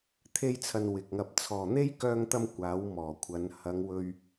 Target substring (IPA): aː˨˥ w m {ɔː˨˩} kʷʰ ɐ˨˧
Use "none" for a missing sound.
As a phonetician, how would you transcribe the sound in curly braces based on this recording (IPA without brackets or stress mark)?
ɔː˨˩